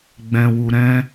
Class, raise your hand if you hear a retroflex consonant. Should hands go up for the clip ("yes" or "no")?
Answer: no